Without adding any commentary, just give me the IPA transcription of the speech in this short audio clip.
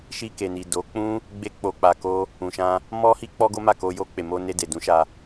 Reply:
ʃ i˧ k e˨ n i˨ d o˨˦ k͡p ũ˦ | ɡ͡b e˦ k͡p o˧ k͡p a˧ k o˦ | ũ˨ ʃ ã˧ | m ɔ˦ h i˦ k͡p ɔ˦ ɡ o˦ m a˦˨ k o˧ j o˧ k͡p e˨ m o˧ n e˧ d e˨ d ũ˨˦ ʃ a˧

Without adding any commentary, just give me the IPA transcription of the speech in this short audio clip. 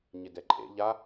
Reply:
ɲ ɪ d ɛ ǃʼ ḛ ʎ a

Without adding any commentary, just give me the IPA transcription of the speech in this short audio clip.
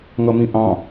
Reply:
ŋ ʌ m ĩ ʔ ɑ̃

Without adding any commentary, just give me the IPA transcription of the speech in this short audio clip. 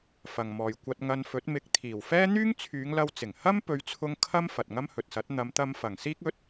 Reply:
f ɐ˨ ŋ m ɔː˨ j kʷ ɐ˧ t̚ ŋ ɐ˧ n f ɵ˨˥ t̚ m ɪ˨˥ k̚ t̪ʰ iː˨˩ w f ɛː˥ n̪ yː˥ ŋ t͡sʰ yː˨˧ ŋ l ɐ˧ w t͡s ɪ˨˩ ŋ h ɐ˥ m p ɵ˨˧ ɥ t͡sʰ ʊ˧ ŋ kʰ ɐ˥ m f ɐ˨ t̚ ŋ ɐ˥ m h ɵ˨ t̚ s ɐ˨˥ t̚ n̪ ɐ˨˧ m t̪ ɐ˧ m f ɐ˨˩ ŋ s iː˥ k̚ ɵ˨˥ t̚

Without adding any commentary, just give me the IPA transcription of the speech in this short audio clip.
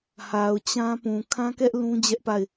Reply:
h a˨ ʊ̯ t͡ɕ ã˦ p ũ˨ kʰ ã˦ k ɛ˦ ʔ l ũ˦ d͡ʑ ɛ˦ ʔ p a˦˨ ɪ̯

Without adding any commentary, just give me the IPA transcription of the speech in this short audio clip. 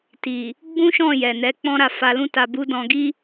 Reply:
t i˨ | ɡ͡b ũ˦ ʃ ɔ̃˦˨ j ɛ˨ n ɛ˨˦ k͡p ɔ̃˦ ɾ a˧ f a˧ l ũ˦ t a˧ b u˦ d ɔ̃˧ ɡ i˦

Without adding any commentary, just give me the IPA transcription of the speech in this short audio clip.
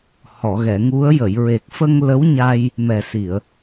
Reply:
h ɔ˨˩˨ ɣ ɛ˨˩˨ ŋ u˧˥ ə̯ j ə˨˩˨ j ɹ e˨˩ k̚ f ə˧ ŋ l ə˧˥ w ɲ a˧ j | m ɛ˨˩ s i˨˩˨ ə̯

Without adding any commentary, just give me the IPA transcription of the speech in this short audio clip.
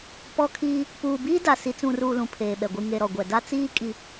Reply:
p ɔ˦ kʰ iː˦ | p uː˨ b iː˦ d a˨ s i˨ t͡s ũ˨ r uː˨ l ũ˨ pʰ eː˨ ɓ ɛ˨ ɡʷ i˨ ŋ e˨ ɾ ɔ˨ ɡʷ ɛ˨ d a˦ t͡s iː˦ kʼ i˨

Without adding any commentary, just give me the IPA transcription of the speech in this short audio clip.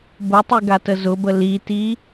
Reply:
b ʊ tˤ i ɡ a t ə z ʊ b ə l i t i

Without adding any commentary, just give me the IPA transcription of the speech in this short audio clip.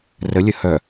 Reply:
r ə lʲ ə h œ

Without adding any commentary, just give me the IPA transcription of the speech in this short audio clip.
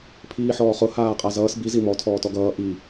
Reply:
pʰ iː ħ ɔː χ ʊ h aː qʼ a z ʌː s b i z i m ɔ tʰ ɔː t ɔ ɡ ʌː ʔ i

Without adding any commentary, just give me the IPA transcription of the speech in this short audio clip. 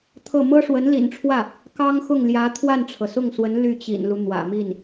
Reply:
t̪ʰ ɤ˥˩ m ɤ˥ ʂ w ə˧˥ n l ḭ˨˩ n ʈ͡ʂʰ w ä˥˩ | k ɑ˥ ŋ x ʊ˥˩ ŋ l j ä˧˥ t̪ʰ w a˥˩ n ʈ͡ʂʰ ɤ˩ s ʊ˥˩ ŋ s w ə˧˥ n l y˥˩ t͡ɕ ḭ˨˩ n l u˦ n̪ w ä̰˨˩ m i˥˩ n

